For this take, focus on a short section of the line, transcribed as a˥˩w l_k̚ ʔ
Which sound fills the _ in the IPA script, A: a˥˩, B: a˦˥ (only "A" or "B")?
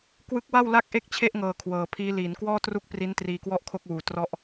A